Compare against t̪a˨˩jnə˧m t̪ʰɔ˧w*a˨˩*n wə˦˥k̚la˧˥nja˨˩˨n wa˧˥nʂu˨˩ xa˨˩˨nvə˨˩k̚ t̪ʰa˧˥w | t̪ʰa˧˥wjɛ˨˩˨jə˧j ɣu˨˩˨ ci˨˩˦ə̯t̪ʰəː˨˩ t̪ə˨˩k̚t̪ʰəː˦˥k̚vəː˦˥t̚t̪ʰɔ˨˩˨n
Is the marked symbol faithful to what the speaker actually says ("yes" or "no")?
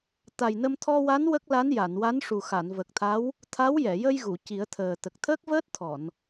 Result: no